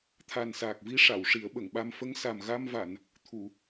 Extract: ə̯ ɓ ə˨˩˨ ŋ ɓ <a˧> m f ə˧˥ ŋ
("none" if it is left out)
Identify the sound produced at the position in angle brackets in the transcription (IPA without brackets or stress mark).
a˧